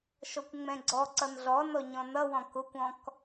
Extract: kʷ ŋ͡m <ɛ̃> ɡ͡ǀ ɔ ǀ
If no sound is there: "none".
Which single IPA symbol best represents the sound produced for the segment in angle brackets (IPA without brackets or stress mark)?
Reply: ɛ̃